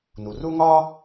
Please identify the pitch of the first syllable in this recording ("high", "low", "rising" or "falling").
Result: low